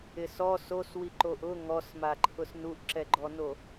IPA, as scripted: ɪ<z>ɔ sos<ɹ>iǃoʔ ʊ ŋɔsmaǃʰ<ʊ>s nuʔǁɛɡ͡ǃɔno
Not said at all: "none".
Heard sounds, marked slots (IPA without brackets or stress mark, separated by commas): s, w, ʊ